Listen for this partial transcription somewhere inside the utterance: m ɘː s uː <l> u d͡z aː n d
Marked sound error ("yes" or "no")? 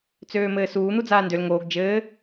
yes